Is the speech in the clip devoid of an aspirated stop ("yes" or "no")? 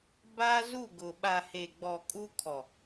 no